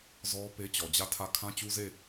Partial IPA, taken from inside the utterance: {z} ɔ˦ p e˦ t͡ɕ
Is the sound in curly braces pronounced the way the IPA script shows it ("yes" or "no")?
yes